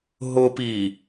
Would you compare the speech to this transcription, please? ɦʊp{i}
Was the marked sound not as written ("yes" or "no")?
no